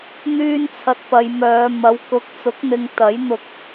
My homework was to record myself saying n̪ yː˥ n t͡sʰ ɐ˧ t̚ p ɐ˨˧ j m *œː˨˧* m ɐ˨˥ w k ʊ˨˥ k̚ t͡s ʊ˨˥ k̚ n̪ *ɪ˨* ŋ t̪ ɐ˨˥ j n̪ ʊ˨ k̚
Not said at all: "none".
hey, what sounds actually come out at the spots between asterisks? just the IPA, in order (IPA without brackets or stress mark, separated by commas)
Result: œː˨˧, ɪ˨